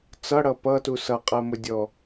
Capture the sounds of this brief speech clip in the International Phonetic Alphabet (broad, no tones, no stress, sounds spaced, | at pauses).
t͡s ʌ ɽ ʌ p ʌ t u s ʌ qʼ ɜ m ʊ dʲ ɔ